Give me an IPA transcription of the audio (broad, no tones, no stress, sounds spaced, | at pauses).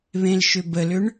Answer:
β ẽ l ʃ ʏ b ə l ʏ ɳ